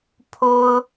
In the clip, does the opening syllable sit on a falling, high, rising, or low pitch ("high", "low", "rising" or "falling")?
high